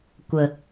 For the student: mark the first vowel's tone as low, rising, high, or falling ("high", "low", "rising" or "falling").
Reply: low